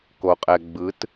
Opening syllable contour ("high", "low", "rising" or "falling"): low